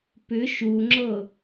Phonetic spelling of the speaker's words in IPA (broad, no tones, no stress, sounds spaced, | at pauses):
p ʏ ʃ u ŋ͡ǁ ɤ